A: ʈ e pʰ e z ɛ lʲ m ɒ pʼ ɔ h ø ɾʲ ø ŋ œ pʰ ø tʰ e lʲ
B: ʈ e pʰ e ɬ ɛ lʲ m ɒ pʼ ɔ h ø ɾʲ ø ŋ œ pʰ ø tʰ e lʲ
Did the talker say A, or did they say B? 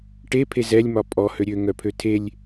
A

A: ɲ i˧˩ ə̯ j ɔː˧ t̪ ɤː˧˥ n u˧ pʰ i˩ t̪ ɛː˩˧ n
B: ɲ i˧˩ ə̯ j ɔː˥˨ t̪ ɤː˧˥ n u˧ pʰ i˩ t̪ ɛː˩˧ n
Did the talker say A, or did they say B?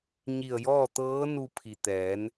B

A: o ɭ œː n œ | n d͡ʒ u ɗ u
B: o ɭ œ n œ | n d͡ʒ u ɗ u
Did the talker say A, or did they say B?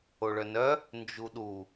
B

